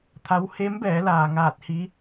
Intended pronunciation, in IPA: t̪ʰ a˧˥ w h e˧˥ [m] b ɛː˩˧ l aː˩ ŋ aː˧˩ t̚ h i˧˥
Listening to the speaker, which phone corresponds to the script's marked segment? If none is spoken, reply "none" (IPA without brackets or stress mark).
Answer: m